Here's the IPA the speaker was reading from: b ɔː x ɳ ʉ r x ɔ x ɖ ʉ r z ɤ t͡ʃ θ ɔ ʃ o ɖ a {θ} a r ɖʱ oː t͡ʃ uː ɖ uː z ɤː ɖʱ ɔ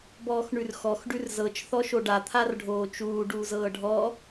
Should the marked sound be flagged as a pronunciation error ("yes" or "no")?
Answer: yes